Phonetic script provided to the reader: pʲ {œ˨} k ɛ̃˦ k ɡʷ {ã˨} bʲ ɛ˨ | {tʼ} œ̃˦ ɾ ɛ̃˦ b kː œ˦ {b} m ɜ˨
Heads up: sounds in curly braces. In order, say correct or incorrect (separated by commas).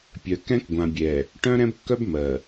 correct, correct, incorrect, correct